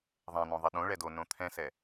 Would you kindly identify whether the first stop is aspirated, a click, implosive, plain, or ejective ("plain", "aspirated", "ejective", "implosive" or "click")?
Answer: implosive